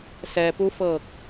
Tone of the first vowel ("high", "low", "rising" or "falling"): low